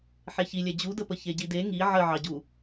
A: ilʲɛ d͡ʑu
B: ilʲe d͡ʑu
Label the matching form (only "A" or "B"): A